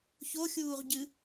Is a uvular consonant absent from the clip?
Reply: no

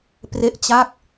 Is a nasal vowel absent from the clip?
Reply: yes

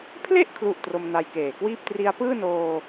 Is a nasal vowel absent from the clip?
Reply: yes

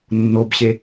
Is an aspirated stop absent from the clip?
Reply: yes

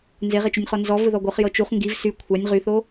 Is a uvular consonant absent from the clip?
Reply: no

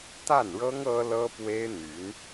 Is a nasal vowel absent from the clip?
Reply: yes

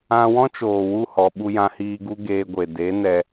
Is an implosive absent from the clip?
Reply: no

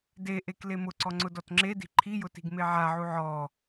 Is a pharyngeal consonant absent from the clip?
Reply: no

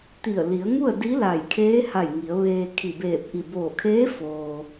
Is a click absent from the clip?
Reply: yes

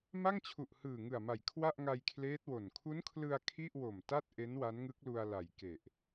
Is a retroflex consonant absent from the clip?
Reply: yes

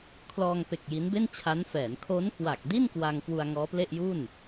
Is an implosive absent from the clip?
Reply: yes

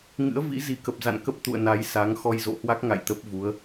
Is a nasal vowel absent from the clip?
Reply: yes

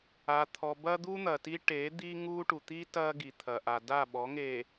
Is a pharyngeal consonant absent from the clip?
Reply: yes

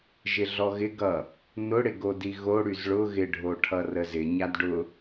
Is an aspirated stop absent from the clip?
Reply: no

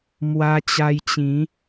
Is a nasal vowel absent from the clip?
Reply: no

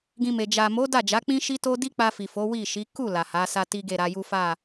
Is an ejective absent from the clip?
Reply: yes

